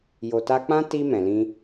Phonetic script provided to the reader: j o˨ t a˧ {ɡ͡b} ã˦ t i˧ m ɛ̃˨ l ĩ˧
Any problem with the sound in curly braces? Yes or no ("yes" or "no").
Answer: yes